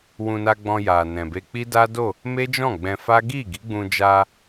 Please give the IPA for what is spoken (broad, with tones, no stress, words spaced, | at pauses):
wũ˧na˧ɡ͡bɔ̃˧ ja˨nɛ̃˨be˧ k͡pi˦da˦do˦˨ | me˦d͡ʒɔ̃˦˨ɡ͡bɛ̃˧fa˦ ɡi˦˨ɡi˨˦ɡ͡bũ˧d͡ʒa˧